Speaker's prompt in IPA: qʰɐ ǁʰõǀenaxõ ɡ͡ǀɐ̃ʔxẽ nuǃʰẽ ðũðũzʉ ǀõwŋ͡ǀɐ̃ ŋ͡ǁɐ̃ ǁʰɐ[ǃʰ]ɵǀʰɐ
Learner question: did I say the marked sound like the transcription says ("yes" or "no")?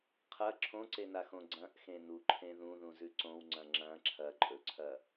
no